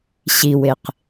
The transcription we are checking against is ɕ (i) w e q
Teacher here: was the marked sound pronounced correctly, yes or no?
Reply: yes